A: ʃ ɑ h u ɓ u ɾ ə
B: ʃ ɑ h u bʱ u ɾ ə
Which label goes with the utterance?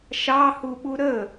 A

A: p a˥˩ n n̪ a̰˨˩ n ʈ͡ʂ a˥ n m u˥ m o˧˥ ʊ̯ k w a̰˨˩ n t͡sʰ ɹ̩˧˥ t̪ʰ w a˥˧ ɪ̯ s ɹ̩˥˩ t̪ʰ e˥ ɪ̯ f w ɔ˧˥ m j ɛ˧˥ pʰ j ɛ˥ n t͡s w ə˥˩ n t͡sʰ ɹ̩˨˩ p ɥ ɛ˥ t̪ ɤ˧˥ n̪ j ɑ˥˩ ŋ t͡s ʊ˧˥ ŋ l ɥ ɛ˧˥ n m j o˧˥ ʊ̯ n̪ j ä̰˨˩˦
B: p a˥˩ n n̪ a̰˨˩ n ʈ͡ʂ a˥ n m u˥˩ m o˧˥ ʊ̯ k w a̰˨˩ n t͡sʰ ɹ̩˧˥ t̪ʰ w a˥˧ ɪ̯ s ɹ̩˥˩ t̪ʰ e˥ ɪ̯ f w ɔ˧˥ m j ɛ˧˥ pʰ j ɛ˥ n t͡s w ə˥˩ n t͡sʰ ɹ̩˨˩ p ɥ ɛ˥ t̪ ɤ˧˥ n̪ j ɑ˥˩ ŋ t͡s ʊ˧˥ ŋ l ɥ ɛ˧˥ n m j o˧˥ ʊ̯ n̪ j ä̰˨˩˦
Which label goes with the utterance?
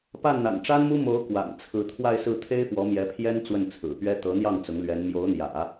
A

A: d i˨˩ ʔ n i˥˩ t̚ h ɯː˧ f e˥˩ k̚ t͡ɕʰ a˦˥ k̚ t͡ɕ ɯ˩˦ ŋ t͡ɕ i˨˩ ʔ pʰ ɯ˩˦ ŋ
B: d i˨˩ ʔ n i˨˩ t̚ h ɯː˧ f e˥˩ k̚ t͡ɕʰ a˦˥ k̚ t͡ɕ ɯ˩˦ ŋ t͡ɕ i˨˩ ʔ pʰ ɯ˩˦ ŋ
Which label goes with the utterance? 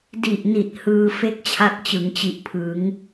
B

